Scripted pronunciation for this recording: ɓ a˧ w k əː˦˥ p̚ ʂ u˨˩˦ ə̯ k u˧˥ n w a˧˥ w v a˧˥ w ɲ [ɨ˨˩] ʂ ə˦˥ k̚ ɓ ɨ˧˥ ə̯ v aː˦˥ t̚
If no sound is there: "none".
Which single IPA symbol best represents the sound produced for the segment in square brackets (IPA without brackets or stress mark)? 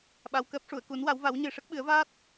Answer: ɨ˧